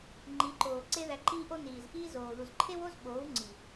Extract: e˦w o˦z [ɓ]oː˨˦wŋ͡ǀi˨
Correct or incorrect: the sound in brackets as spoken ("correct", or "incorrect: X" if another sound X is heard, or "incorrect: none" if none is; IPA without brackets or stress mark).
correct